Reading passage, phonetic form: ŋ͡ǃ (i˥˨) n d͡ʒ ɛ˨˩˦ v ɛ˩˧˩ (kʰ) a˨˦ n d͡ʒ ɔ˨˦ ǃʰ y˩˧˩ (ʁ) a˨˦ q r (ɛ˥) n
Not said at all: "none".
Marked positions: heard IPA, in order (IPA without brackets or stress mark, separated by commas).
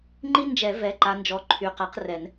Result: i˥, ǃ, q, ɛ˨˩˦